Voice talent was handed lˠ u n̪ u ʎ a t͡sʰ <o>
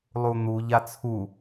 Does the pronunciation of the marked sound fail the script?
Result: yes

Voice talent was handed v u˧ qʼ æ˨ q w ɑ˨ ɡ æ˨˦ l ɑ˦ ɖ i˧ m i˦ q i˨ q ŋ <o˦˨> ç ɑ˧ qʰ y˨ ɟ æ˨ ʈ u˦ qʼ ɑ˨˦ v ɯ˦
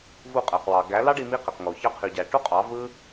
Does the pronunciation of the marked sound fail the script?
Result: yes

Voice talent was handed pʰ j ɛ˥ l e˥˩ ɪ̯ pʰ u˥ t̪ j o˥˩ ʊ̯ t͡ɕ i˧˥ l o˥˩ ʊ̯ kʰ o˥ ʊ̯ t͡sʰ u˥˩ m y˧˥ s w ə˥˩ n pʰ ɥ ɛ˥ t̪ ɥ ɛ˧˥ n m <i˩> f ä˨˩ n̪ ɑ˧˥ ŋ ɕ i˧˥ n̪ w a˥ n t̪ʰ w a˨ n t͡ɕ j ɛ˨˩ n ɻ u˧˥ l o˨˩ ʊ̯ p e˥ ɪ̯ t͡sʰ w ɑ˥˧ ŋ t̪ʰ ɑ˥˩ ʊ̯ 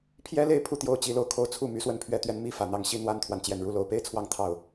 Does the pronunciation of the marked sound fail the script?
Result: yes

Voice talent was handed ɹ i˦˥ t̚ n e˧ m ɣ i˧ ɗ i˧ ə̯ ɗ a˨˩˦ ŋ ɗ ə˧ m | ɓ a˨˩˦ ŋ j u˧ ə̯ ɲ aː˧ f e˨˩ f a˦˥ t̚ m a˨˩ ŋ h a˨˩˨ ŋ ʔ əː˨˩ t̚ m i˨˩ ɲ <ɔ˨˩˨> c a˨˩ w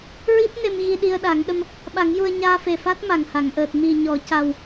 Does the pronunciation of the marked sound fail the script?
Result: no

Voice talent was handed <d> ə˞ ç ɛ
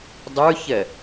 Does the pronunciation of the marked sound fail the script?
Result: yes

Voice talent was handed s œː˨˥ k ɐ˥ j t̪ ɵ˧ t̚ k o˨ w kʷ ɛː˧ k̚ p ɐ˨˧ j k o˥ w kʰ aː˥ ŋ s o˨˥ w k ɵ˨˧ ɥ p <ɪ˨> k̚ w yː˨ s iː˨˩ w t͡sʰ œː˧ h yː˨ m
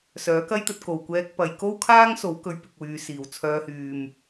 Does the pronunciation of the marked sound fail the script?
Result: no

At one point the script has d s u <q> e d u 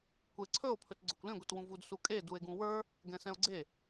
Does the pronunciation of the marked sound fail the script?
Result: yes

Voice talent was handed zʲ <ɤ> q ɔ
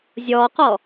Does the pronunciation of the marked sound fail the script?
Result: yes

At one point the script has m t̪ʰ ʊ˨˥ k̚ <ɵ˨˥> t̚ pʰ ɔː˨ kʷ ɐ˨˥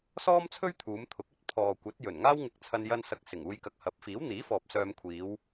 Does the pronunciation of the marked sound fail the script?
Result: yes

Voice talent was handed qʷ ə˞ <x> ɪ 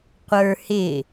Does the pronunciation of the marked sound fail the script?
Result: yes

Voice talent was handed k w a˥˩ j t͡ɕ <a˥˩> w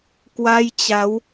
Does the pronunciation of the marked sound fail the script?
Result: yes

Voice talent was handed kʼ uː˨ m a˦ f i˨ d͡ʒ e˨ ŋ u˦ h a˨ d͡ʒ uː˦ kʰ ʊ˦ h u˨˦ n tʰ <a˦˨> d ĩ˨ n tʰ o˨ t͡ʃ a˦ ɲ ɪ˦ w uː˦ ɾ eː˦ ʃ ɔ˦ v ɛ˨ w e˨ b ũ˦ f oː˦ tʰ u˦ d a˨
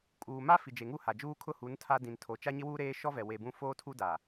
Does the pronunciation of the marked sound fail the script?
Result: yes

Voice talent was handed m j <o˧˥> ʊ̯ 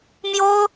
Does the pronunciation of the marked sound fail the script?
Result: yes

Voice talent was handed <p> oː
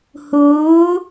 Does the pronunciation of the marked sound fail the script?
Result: yes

